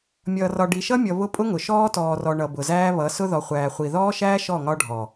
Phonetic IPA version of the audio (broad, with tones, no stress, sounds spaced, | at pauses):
mʲ ʌː˨ r ɒ˨ ɖ i˨ ʃ ʌ˦ mʲ ʌ˨ β ʊ˦ pʼ ʊ˦ ŋ ʊ˨ ʃ ɔː˦ t ɔː˨ r ɔ˨ ɳ ʌ˨ b ʊ˨ z æː˦ β ʌ˨˦ s ʊ˦ ð ɔ˨ χʷ æː˨ χʷ i˨ ð ɔː˦ ʃ æː˦ ʃ ɔ˦˨ ŋ ɒ˦ ɖʱ ɔ˨